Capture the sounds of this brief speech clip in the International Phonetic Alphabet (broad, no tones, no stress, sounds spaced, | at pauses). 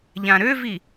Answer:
ʎ ã ɾ ø v i